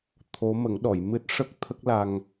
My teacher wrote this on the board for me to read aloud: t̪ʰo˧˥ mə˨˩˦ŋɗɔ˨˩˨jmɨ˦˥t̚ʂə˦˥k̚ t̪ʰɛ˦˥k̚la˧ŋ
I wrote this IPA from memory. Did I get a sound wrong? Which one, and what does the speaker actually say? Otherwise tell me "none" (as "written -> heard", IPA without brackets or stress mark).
ɛ˦˥ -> ə˦˥